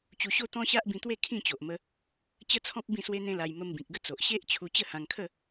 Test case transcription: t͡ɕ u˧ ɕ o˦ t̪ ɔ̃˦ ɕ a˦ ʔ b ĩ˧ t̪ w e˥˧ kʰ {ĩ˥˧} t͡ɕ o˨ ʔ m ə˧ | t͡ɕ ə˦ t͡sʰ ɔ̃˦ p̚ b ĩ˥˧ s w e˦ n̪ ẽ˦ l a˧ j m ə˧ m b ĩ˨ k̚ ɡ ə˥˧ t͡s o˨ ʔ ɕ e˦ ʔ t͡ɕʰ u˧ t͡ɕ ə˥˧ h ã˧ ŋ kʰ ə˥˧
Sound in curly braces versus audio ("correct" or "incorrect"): correct